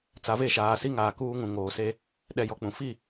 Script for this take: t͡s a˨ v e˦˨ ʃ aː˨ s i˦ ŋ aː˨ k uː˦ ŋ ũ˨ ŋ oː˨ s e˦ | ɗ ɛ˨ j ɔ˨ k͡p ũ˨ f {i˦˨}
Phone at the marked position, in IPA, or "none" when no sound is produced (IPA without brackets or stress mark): i˦˨